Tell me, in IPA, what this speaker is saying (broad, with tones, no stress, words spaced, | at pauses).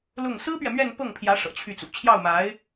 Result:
lʊ˥˩ŋ sɹ̩˥pɥɛ˨ mɥɛ˥˧npɤ˥˩ŋpʰjä˧˥ ʂɤ̰˨˩t͡ɕʰy˥˩t͡sṵ˨˩ t͡ɕʰjɑ˥˩ʊ̯ma˧˥ɪ̯